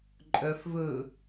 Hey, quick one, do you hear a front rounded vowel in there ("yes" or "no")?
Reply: yes